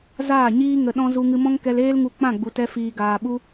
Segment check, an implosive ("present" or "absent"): present